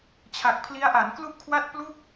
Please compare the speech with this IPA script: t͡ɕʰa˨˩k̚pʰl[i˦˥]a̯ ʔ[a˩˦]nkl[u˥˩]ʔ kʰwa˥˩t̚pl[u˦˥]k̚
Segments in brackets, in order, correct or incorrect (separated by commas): correct, correct, correct, incorrect